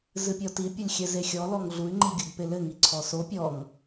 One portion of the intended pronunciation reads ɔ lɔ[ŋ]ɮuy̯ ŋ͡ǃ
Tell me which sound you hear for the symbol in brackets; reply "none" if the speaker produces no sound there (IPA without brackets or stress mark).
ŋ